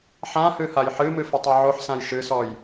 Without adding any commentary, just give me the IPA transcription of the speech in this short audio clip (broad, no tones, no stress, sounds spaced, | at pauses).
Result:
ħ ã h ɨ h a j ħ ɨ m ɨ f ɨ tˤ ɨ ʕ o ħ s ã j ʃ ɨ s ɔ j